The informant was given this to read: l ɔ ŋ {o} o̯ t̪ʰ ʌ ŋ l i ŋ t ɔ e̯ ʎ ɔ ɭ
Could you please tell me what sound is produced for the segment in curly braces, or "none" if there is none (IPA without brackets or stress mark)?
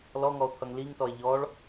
ɔ